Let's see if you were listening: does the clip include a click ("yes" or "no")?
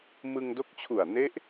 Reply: no